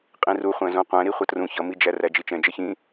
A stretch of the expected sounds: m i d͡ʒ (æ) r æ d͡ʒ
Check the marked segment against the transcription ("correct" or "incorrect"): correct